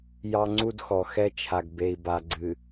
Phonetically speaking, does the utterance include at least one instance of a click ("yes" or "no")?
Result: yes